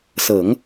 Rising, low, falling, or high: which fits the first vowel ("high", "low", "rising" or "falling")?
low